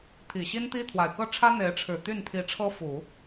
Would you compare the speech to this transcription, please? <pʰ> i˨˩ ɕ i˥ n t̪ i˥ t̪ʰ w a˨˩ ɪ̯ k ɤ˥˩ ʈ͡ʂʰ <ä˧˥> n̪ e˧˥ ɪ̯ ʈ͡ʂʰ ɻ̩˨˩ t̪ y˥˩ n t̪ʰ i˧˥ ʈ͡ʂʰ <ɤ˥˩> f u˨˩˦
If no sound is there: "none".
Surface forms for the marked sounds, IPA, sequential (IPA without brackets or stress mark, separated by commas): t̪ʰ, ä˥, ɤ˥